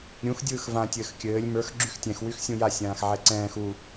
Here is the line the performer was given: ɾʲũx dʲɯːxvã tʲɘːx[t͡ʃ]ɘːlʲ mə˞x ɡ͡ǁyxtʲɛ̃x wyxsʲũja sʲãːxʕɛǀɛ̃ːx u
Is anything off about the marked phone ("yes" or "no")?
yes